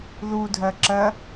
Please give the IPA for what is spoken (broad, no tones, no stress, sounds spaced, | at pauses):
ð u dʱ ɜ ǁ ɜ